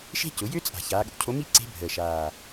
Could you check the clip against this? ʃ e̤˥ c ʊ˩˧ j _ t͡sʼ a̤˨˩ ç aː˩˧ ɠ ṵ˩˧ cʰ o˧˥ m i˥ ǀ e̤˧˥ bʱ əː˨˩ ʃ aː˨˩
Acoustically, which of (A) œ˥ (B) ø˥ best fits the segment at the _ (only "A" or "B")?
B